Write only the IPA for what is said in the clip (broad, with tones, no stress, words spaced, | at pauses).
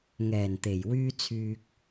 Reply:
ŋɛː˨˩nt̪e˨˩jwyː˧ t͡sʰyː˨k̚